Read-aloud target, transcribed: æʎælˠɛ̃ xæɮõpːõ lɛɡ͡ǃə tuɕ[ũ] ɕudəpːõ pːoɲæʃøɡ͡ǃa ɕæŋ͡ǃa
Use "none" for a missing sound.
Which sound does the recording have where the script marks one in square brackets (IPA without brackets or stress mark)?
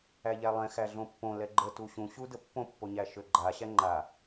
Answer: ũ